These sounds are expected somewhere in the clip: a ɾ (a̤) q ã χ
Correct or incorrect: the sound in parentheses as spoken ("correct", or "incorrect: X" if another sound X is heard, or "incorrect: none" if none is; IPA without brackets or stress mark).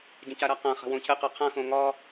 incorrect: a